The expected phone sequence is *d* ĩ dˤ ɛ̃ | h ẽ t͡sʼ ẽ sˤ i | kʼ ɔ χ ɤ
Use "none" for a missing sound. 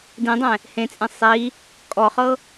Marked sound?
d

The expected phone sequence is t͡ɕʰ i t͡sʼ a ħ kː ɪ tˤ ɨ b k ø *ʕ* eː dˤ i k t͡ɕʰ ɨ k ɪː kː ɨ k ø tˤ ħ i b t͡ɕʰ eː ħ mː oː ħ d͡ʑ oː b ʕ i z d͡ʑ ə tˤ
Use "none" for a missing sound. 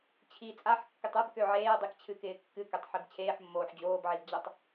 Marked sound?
ʕ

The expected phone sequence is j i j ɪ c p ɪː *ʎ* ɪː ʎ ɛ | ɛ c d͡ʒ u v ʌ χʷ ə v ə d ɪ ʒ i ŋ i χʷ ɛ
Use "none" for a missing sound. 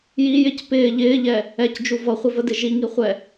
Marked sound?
ʎ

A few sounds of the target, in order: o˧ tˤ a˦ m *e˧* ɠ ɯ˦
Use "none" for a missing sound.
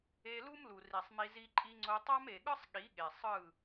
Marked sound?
e˨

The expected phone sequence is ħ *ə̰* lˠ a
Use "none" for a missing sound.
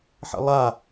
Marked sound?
ə̰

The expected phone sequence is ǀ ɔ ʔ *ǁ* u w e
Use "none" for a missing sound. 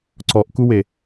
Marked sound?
k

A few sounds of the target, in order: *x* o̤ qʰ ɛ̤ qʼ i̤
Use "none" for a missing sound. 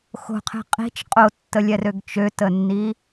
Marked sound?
x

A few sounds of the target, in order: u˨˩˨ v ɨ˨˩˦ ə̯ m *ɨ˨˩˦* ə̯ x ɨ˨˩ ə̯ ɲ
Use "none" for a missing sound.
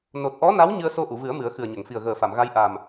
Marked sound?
ɨ˨˩˦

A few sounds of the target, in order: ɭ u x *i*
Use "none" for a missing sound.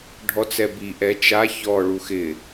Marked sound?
ɪ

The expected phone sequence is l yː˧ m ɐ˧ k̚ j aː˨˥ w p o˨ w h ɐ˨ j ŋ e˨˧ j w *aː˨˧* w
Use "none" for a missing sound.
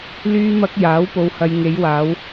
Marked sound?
aː˨˧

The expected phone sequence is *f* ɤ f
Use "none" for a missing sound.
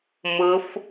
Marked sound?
m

